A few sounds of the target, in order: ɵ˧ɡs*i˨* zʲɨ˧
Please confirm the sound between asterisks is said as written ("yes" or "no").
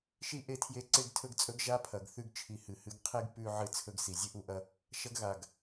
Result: yes